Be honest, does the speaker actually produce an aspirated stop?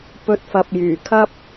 yes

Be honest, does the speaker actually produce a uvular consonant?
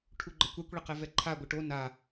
yes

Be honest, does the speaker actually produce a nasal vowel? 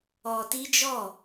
no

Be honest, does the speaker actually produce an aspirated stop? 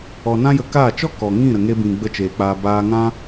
no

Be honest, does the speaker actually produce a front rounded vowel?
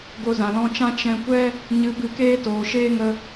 no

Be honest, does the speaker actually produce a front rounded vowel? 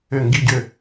yes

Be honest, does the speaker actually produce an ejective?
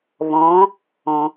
no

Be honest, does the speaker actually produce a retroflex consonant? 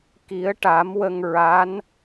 yes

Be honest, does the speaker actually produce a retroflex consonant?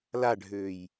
yes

